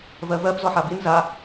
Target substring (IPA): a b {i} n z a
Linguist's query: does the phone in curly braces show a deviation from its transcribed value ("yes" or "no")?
no